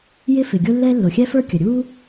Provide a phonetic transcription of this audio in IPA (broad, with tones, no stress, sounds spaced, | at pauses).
j ɪ˥ f ɪ˩ ɡʲ ʊ˥ lː ɛ˥ lː ʊ˩ xʲ ɛ˥ f ə˞˥ kʲ ə˩ ɾʲ u˥